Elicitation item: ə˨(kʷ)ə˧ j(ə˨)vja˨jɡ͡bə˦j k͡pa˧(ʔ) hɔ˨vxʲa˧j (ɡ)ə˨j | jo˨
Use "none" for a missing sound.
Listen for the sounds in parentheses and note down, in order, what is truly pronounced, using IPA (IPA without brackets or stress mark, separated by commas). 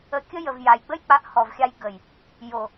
kʲ, ə˨, ʔ, ɡ